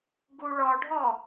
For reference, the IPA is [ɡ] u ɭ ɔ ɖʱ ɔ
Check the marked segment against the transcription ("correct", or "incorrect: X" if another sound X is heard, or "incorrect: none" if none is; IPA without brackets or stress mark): correct